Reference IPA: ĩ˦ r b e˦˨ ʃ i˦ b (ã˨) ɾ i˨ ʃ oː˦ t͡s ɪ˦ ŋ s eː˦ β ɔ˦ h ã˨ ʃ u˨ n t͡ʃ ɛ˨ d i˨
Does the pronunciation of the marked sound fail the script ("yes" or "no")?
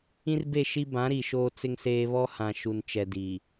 yes